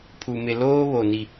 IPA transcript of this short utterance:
pʰ u˨ m ɪ˨ l oː˦ β o˨ n i˨

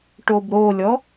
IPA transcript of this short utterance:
ʈ o b ɾ o lʲ ɔ

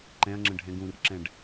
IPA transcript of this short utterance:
ǃ ɛ̃ ɐ̯ ŋ͡ǁ ə̃ ɖʱ ɛ̃ ɡ ũ r ǁ ɛ̃ ɖ

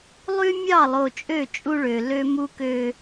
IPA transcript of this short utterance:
lˠ y˦ mʲ ɑ˦˨ lˠ o˨ t͡ʃʼ ø˦˨ t͡ʃʼ u˦ ɭ ø˨ l ø˦ m u˦ k ø˦

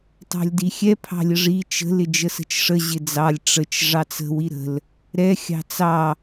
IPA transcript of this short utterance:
tˤ ɑ̤ lʲ d i xʲ ɛ pʰ ɑ̤ lʲ ə ʐ i t͡ʃ ə̤ l ɪ d͡ʒ ə s ə̤ t͡ʃ ʂ ə ʑ ɪ d͡z ɑ lʲ ʈ͡ʂ ə t͡ʃ ʐ ɑ t͡s ə̤ w i ɾ ə̤ l | ɾ ɛ xʲ ɑ̤ t͡s ɑ

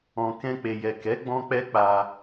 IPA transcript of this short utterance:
ɔ̃˨ k ɛ̃˧ k͡p e˨ j ɛ˨ k ɛ˨˦ ɡ͡b ɔ̃˦ k͡p ɛ˦ k͡p a˧

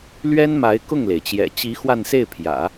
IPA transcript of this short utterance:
l ɥ ɛ˥ n m a˧˥ ɪ̯ k ʊ˥˩ ŋ l e˩ ɪ̯ t͡ɕ j ɛ̰˨˩ t͡ɕ i˧˥ x w a˥˧ n s e˥˩ ɪ̯ pʰ j ä̰˨˩˦

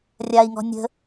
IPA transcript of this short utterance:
rʲ a i̯ ŋ ɔ̤ nʲ ə̤

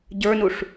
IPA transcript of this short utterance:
ɟ ə˞ n u ʂ

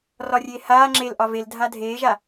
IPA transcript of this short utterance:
r ɒ rʲ eː h aː ŋ͡ǁ e l ʔ ɒ v e l dʱ a dʱ eː ʒ a

